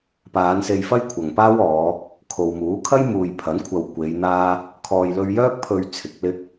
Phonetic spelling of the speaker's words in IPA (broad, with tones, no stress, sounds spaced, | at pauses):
p aː˨˧ n s e˧ j f ɐ˥ j kʷʰ ɐ˨ ŋ p aː˥ w ɔː˨˧ | kʰ o˨ w m uː˨˥ kʰ ɐ˥ j m uː˨ j pʰ ɐ˨˥ n kʷʰ ɐ˧ w kʷ e˨˧ j n̪ aː˥ | kʰ ɔː˨ j l ɵ˧ ɥ j œː˥ k̚ pʰ ɵ˧ ɥ t͡sʰ ɪ˨˥ k̚ l ɪ˥ k̚